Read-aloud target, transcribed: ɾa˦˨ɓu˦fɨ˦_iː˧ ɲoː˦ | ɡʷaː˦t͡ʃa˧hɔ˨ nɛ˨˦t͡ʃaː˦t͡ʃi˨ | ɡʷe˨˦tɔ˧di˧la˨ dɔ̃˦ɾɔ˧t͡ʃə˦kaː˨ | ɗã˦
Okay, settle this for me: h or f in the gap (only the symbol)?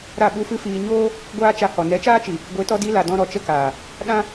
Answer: f